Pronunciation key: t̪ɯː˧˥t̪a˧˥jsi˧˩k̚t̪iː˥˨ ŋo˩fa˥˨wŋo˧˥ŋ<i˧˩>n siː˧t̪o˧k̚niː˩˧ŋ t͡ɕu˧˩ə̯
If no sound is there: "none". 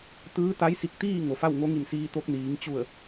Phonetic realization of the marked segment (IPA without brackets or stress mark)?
i˧˩